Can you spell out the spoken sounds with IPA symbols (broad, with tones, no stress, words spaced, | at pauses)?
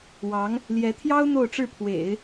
wɑ˧˥ŋ | ljɛ˧˥t̪ʰjɑ˥ʊ̯ n̪o˥˧ʊ̯ʈ͡ʂɻ̩˥˩ pʰwḛ˨˩˦ɪ̯